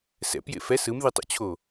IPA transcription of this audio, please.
s ɛ̰ p j ḛ f ɛ s ɯ m ð i tˤ o̰ t͡ɕʰ o

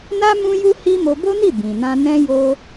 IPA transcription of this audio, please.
n a˦ m ũ˦ j u˦ h i˦ m o˧ b o˦ n i˦˨ b ĩ˨ n ã˧ n ɛ̃˦ j o˦

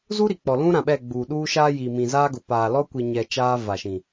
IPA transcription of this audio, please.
z u˦ ɾ i˨ k͡p ɔ˨ l ũ˦ ɾ ã˨ ɓ ɛ˦˨ ɡ͡b uː˨ ɗ uː˦ ʃ aː˦ j iː˨ m ĩ˨ z aː˦ ɡ ʊ˨ p aː˨ l ɔ˦ kʷ i˨ ɲ ɛ˨ t͡ʃ aː˦ v a˨ ʃ ĩ˨

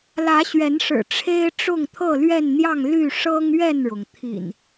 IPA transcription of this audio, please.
l ä˨˦ ɕ ɥ ɛ˨˦ n ʂ ɻ̩˨˩ ʈ͡ʂʰ e˦ ɪ̯ ʈ͡ʂ ʊ˥˨ ŋ t̪ʰ ɤ˥˨ l ɥ ɛ˥˨ n n̪ j ɑ˥˨ ŋ l y˥˨ ʂ ɤ˦ ŋ ɥ ɛ˥˨ n ɻ ʊ˩ ŋ t̪ʰ ḭ˨˩ n

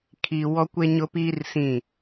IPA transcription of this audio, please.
kʰ i˦ w ɔ˦ kʷ e˦ ɲ ʊ˦ p iː˦ r s ĩ˦˨

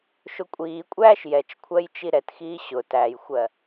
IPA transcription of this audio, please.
ʃ ʊ kʷʼ iː kʷʼ æː ʃ j ɛ t͡ʃ kʷʰ ɜ j t͡ʃ i ɾ ɛ t x iː ɕ ʊ t æ j xʷ ɜ

